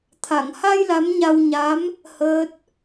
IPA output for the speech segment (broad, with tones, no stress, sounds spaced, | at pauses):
t̪ʰ a˨˩˨ ŋ h a˧ j l a˧˥ m ɲ a˧ w ɲ a˧˥ m | h əː˦˥ t̚